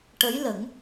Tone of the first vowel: rising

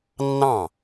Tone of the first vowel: falling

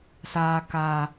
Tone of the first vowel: high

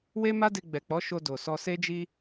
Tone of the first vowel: high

